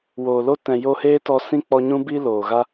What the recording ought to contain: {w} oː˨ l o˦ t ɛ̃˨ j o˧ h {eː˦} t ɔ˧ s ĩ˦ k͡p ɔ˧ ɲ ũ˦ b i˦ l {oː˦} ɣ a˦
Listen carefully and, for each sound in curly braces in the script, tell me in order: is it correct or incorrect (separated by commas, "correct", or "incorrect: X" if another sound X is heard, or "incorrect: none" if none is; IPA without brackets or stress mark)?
correct, correct, incorrect: oː˨